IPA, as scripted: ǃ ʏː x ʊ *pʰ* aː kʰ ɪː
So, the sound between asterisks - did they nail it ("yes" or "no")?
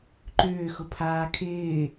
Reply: yes